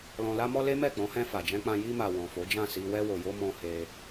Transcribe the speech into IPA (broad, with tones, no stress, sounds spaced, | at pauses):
l ɔ̃˨ l a˧ m ɔ˧ l e˦ m ɛ˦˨ k͡p ɔ̃˨˦ h ɛ̃˧ f a˨ d͡ʒ ɛ̃˧ k͡p ã˧ j i˧ m a˨ w ɔ̃˨ f o˨˦ d͡ʒ ã˦˨ s i˧ w ɛ˧ w o˨ j o˧ m ɔ̃˧ h e˧